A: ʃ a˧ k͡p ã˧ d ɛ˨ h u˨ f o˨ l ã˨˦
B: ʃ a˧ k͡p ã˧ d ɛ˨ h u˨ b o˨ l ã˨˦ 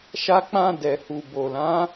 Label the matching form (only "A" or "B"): B